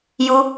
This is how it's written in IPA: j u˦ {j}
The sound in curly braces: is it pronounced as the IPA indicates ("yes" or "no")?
no